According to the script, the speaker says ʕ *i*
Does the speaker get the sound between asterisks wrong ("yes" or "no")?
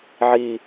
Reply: no